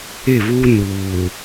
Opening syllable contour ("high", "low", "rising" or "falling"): falling